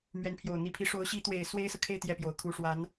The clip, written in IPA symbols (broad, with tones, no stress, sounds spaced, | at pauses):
m ɥ ɛ˧˥ n pʰ j o˨˩ ʊ̯ n̪ i˧˥ pʰ i˧˥ ʂ o˧˥ ʊ̯ ɕ i˧˥ t̪ w e˨˩ ɪ̯ s w e˥ ɪ̯ s ɤ˨ kʰ e˥˧ ɪ̯ t̪ j ɛ˥˩ p j o˨˩ ʊ̯ kʰ u˧˥ ʂ w a˧˥ n